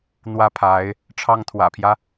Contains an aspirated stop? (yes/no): yes